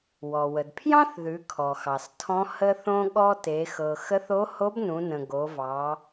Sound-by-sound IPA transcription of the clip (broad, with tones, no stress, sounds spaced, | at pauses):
w ɔ˩ w ə˩ d pʰ j ɑ̃˥ θ ð ʉ˩˧ kʰ ɔ˩ x ɑ˩ s tʰ ɔ̃˧˥ h ə˧ θ õ˧ ɠ ɔ˧ t e˩˧ x ɤ˩ x ə˧˥ θ o˧˥ h o˧˥ b n ũ˩˧ n ə̃˩ ɡ o˩˧ v ɑ˩˧